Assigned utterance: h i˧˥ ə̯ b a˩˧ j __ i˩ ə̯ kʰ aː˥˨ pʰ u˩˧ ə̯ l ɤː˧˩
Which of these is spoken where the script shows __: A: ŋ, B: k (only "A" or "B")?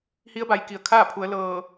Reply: B